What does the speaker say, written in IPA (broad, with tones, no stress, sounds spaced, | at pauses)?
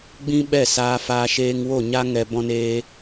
ɡ͡b ĩ˦ ɓ ɛ˦˨ s aː˧ f aː˧ ʃ eː˧ ŋ w o˦˨ ɲ a˦ ŋ ɛ˧ b ɔ̃˧ n eː˧